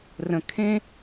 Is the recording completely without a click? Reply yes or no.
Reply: yes